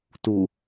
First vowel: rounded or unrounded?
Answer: rounded